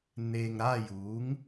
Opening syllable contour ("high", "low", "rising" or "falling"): low